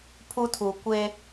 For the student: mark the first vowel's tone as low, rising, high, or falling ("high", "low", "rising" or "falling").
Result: high